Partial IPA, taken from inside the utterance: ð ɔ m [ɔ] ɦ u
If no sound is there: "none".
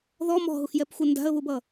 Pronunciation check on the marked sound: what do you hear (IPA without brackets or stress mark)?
ɔ̤